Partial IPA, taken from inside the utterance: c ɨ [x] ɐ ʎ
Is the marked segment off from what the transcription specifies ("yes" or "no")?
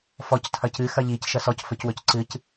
no